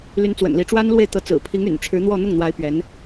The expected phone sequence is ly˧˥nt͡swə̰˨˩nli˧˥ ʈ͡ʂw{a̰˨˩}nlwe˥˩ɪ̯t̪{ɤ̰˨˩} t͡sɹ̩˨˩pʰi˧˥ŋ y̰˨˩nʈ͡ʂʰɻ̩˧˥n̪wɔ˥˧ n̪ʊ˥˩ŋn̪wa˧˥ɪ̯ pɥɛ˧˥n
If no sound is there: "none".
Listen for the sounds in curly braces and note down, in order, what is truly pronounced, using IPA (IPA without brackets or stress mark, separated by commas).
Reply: a˥, ɤ˧˥